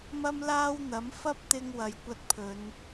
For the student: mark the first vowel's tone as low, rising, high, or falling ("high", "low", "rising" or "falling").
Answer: high